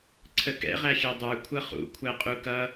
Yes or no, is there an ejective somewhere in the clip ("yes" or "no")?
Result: yes